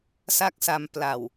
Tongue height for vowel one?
low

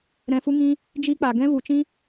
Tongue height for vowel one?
mid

